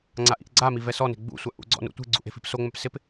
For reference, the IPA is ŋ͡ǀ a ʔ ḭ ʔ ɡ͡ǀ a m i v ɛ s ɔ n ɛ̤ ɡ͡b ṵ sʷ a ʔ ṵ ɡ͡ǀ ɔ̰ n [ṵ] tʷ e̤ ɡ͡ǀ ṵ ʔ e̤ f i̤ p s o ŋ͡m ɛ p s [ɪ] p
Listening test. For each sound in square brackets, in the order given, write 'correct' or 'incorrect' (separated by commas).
correct, correct